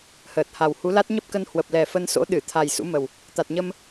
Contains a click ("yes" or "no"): no